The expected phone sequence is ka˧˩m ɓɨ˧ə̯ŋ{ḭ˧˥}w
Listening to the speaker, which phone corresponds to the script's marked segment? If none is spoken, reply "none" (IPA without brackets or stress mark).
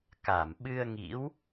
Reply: ḭ˧˥